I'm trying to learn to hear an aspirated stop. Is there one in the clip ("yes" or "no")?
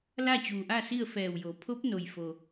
yes